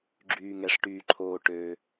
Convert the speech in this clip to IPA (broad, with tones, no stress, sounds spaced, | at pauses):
ɡ͡ǁ yː˩ ŋ ɛ˩ ʂ ʈ yː˩ ǃʰ oː˩ ʈ ø˩